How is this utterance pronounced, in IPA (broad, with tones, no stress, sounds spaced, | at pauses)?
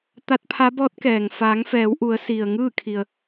t̪ a˧˥ t̚ pʰ a˧˥ b ɔː˧˥ t̚ k ɛː˩ ŋ f aː˩˧ ŋ f ɛː˩˧ w ʔ u˩˧ ə̯ s i˩ ə̯ ŋ ɯː˥˨ kʰ i˩ ə̯